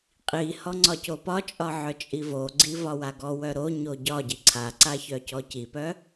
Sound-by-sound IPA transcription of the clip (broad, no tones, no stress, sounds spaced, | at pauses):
qʼ i h ɔ ŋ͡ǀ ɒ c o p ɒ t͡ʃʼ ɒ ʕ œ t͡ʃʼ i v o ɡ͡ǀ i v ɒ w a ɡ ɔ w œ ɾ o ɲ o ɟ ɒ ɟ i ǀʰ a ǀ a ç œ c ɔ c i p œ